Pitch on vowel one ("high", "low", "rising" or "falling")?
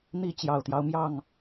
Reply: falling